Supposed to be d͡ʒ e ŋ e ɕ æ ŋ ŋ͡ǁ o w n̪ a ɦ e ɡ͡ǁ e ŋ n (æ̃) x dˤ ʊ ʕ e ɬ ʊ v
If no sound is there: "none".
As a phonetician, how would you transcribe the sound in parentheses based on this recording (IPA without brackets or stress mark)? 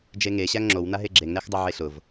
æ